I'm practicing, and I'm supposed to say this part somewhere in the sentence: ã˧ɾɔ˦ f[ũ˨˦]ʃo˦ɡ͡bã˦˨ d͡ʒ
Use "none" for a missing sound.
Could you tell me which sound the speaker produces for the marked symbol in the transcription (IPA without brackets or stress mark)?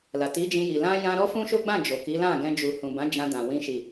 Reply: ũ˦